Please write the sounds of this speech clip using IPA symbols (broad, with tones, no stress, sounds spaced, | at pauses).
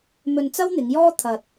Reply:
m ɵ˧ n t͡s ɐ˥ w n̪ ɪ˨˧ ŋ j ɔː˥ t̪ʰ ɐ˧ t̚